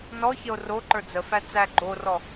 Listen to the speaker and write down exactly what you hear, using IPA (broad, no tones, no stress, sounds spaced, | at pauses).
n ɔ ç ə o̯ r o ǃ ə˞ d͡z ə f æ t͡s æ ɡ͡ǃ o r ɔ